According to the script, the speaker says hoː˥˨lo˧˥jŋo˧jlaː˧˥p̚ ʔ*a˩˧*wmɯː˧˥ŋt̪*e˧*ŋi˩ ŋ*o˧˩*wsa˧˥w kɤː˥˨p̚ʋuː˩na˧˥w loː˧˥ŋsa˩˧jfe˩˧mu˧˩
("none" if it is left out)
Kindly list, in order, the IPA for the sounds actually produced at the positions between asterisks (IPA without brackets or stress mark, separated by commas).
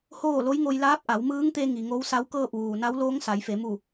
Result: a˩˧, e˧, o˧˥